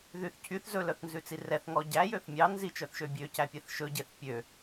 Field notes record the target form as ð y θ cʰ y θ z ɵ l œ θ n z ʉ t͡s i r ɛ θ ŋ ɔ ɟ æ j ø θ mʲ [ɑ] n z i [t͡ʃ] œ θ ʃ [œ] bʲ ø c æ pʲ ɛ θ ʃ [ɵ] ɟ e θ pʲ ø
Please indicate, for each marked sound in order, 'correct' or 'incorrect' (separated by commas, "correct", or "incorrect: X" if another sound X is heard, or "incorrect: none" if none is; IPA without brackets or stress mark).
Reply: correct, correct, incorrect: ø, correct